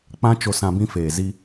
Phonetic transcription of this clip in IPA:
k͡pã˦t͡ʃo˧sã˧ bĩ˧feː˨zi˧

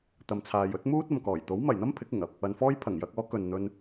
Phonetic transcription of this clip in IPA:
t̪ɐ˨mt͡sʰaː˨j ɵ˥t̚muː˥t̚ ɐ˨mkɔː˨˩j t̪o˨˥wmɐ˨˩jn̪ɐ˥m pʰɪ˨˥k̚ɪ˨˩ŋɐ˧p̚ | ɐ˨nfɔː˥j pʰɐ˨˩ŋjɐ˧k̚ɔː˨˥ kɵ˨nn̪ɵ˧n

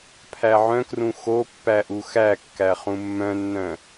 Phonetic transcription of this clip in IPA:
pʰæʕœ̃krũ xo pːæʔuxækːæ χũmːœ̃nːœ̃

